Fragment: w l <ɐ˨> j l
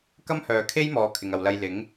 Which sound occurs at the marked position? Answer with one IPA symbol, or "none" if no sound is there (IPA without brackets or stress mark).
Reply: ɐ˧